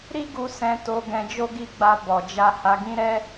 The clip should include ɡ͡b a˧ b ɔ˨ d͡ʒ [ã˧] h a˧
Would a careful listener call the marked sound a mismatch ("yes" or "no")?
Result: yes